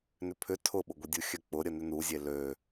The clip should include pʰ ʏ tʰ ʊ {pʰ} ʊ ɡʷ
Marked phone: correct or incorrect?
incorrect